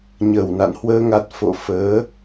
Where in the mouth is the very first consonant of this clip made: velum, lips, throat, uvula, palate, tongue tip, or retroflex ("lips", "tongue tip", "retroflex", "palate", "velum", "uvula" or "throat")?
palate